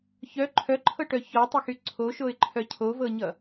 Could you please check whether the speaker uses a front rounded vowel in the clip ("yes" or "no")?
yes